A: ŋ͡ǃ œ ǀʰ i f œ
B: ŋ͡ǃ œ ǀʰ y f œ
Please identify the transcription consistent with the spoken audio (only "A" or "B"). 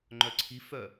A